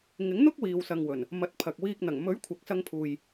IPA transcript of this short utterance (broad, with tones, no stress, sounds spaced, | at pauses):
ŋ ɪ˨˥ ŋ n̪ ʊ˥ k̚ w iː˨ w s ɐ˨ ŋ w ɵ˨˩ n | m ɐ˨˥ t̚ pʰ ɐ˨ k̚ w iː˧ k̚ n̪ ɐ˨˩ ŋ m ɵ˨˥ ɥ kʷʰ ɐ˨ k̚ s ɐ˧ ŋ pʰ uː˨ j